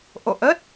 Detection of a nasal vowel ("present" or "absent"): absent